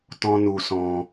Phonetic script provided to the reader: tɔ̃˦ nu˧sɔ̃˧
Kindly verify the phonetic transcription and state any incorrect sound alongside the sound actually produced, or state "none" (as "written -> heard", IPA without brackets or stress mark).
none